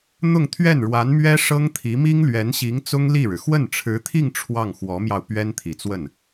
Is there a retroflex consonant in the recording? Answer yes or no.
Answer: yes